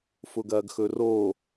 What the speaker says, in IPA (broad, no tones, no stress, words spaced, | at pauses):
fʊɡɐːɡxɵro